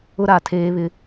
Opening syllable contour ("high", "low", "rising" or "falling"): high